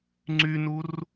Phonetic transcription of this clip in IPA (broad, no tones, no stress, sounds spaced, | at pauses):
ŋ͡ǀ y n u r